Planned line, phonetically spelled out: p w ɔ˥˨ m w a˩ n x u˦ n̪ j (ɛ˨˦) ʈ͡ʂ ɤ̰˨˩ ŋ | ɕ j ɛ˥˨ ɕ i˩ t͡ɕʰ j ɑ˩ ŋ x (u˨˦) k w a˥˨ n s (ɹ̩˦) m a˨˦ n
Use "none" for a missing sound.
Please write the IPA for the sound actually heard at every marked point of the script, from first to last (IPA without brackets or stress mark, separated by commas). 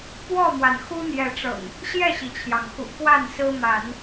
ɛ˨˦, ṵ˨˩, ɹ̩˦